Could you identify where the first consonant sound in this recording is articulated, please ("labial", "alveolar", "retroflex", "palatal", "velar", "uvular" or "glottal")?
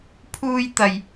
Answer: labial